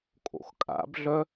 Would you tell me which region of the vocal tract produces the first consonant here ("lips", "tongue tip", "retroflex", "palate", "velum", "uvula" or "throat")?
velum